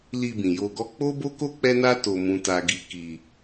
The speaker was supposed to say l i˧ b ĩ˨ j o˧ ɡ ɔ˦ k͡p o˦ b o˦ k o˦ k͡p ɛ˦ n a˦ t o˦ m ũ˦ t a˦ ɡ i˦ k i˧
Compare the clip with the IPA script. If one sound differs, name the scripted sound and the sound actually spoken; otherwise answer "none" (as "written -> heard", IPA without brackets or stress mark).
none